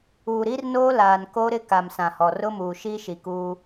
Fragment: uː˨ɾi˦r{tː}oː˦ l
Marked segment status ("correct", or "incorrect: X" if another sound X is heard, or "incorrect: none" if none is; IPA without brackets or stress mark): incorrect: n